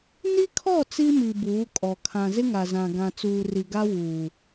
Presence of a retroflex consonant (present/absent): absent